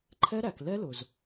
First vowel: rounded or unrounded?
unrounded